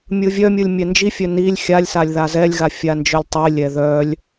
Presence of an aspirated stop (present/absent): absent